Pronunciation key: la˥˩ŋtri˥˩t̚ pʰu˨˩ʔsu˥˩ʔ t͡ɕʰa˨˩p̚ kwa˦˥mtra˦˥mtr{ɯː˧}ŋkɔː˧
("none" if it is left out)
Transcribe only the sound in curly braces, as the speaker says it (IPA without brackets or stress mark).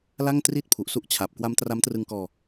ɯ˧